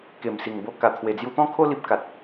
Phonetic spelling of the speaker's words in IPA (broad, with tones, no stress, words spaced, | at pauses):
ke˨˩msi˨˩ŋ bo˧ka˨˩ t̪ʰwe˨˩ d͡zju˧t̪ɔ̃˦kʰo˦ li˦p̚ ka˨t̚